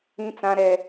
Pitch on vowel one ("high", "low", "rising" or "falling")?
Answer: high